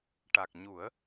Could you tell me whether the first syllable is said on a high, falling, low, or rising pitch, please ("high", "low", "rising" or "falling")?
low